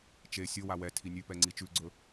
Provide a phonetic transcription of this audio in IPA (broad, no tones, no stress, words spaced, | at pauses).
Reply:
t͡ʃe sʲowa wɛ tʰinʲʉpɛ ŋ͡ǀit͡ʃʉɡ͡ǀɵ